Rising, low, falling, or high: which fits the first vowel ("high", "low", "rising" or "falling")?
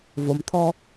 low